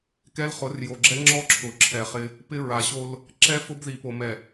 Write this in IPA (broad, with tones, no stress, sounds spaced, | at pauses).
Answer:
k ɛ˦ l χ ʊ˨˦ r j o˨ ɡ͡ǁ ɛ˦ ŋ͡ǁ ɔ˦ ǁʰ ʊ˨ ǁʰ ɛ˨ χ ɪ˦ | p ɪ˦ ɹ a˨ ɕ o˦ l | ǁ ɛ˦ f ʊ˦ b ð i˨ p o˨ m ɛ˨